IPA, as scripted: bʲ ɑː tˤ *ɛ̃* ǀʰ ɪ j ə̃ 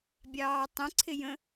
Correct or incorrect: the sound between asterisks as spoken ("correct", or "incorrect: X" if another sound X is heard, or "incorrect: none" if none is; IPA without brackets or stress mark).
incorrect: ə̃